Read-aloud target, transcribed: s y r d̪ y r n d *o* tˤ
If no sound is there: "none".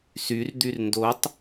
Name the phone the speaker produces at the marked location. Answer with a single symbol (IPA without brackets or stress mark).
o